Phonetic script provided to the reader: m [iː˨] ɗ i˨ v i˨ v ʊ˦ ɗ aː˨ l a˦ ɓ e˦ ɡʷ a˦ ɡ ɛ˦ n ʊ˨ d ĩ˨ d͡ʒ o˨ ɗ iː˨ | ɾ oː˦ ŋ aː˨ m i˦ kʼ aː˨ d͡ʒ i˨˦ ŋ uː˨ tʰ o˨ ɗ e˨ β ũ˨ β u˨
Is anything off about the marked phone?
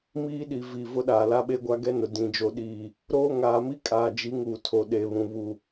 yes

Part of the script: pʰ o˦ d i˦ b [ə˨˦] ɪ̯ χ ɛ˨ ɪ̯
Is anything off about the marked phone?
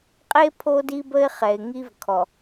yes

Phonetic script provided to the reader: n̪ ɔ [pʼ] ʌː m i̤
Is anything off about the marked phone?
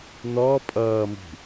no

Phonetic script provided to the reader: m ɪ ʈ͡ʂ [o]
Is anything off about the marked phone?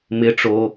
no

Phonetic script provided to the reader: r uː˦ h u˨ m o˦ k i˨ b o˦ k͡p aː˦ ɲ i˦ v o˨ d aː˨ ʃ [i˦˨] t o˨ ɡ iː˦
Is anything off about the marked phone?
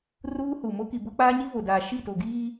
no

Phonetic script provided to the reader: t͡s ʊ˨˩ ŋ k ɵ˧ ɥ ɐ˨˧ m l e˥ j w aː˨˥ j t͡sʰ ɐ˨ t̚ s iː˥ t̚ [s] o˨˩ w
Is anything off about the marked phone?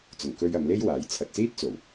yes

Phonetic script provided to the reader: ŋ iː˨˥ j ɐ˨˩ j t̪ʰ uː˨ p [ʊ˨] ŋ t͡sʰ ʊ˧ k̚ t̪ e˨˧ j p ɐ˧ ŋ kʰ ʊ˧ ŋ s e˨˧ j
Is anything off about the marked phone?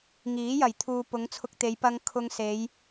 yes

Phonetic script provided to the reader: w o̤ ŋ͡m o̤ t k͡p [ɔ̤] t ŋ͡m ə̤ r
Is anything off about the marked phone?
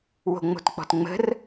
no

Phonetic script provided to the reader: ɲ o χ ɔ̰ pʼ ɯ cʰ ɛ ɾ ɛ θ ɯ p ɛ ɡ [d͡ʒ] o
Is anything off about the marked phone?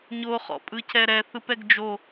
no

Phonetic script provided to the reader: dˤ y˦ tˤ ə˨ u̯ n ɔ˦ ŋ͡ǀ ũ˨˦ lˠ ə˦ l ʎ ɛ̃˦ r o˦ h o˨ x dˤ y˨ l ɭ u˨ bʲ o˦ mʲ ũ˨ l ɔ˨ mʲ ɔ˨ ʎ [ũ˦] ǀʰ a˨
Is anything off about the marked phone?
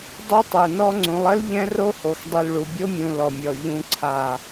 yes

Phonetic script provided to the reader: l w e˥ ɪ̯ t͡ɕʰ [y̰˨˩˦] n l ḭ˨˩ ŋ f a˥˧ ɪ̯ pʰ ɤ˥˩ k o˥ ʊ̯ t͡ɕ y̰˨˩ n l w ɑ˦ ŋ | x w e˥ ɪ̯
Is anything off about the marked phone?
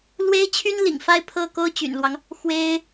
yes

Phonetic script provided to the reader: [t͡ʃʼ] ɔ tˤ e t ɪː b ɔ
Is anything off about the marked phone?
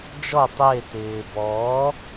yes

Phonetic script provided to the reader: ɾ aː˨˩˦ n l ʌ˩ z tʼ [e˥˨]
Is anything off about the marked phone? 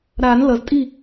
yes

